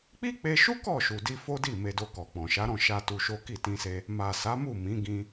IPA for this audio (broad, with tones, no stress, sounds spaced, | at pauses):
k͡p i˦ k͡p e˧ ʃ u˦ k ɔ˦˨ ʃ u˨ d i˧ f o˦ d i˦˨ m e˧ d o˧ k ɔ˨ k͡p ɔ̃˨ ʃ a˨˦ ɾ ɔ̃˦˨ ʃ a˧ t u˧ ʃ o˦ k i˦˨ t ĩ˧ s e˧ | m a˨ s a˨˦ m u˦˨ m ĩ˨˦ ɡ ĩ˧